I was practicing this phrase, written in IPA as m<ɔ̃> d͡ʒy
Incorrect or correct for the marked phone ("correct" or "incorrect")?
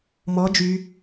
incorrect